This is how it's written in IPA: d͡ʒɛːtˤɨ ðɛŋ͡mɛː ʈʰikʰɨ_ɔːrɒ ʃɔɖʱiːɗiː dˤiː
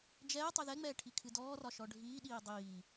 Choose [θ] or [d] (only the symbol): d